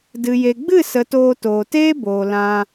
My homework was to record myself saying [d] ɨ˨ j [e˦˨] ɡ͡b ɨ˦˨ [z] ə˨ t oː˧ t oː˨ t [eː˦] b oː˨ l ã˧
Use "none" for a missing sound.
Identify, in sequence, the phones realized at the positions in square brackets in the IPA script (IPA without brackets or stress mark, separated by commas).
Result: d, e˨, s, eː˦